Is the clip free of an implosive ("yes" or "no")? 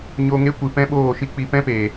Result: no